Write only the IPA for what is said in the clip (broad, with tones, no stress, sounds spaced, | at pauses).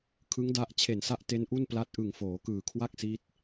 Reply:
kʰ ɯ˦˥ ŋ d a˦˥ ʔ t͡ɕʰ e˨˩ n s a˥˩ ʔ t e˦˥ n ʔ u˥˩ n p l a˦˥ t̚ ʔ ɯ˨˩ ŋ f oː˩˦ k ɯː˨˩ kʰ w a˥˩ k̚ s i˦˥ t̚